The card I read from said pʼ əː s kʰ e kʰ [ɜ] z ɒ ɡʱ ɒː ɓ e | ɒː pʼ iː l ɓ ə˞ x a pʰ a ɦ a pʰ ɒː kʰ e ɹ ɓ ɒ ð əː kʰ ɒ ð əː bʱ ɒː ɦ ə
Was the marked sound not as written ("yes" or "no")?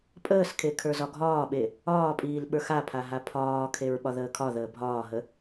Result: yes